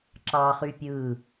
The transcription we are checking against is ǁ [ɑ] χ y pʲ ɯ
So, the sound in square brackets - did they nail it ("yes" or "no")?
yes